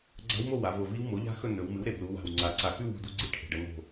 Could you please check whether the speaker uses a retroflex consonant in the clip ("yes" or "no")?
yes